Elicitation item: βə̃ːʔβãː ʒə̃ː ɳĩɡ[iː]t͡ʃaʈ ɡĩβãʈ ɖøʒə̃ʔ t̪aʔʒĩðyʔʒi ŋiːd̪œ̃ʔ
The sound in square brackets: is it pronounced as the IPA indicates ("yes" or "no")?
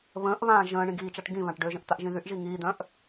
yes